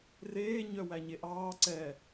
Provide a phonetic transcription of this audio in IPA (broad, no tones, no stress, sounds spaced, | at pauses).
r eː ɲ œ w æ ɲ e ʔ ɑː ǀ ɛ